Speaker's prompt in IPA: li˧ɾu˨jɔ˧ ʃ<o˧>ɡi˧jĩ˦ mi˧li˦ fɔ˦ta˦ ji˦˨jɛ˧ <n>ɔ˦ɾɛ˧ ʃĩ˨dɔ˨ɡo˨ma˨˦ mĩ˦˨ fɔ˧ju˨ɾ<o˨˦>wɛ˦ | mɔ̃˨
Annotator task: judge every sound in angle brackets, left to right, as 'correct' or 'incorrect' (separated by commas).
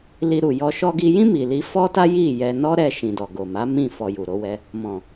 incorrect, correct, correct